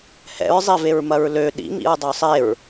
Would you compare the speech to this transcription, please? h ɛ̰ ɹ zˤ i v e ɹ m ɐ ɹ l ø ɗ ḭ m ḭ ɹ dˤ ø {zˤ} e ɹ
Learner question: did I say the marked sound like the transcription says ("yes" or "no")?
no